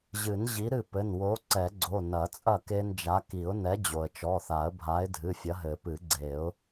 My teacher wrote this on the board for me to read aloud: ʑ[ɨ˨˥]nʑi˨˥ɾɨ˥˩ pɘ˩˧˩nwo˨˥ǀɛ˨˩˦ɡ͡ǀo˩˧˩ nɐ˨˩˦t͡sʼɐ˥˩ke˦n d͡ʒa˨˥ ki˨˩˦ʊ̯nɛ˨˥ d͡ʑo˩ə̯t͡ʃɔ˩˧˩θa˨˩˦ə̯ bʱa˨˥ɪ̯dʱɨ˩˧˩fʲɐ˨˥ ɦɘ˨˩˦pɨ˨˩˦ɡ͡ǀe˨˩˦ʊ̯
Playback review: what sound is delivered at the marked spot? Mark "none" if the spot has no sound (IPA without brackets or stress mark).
ɨ˨˩˦